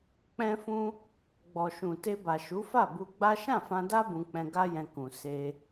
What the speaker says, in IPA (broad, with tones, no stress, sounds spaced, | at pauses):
k͡p ɛ̃˦ f ũ˦ | ɡ͡b ɔ˨ ʃ ũ˨ t e˧ b a˨ ʃ u˨˦ f a˦˨ b u˧ ɡ͡b a˦ ʃ ã˦˨ f ã˧ d a˦ b ũ˧ k͡p ɛ̃˧ ɡ a˦ j ɛ̃˧ k ũ˨ s e˧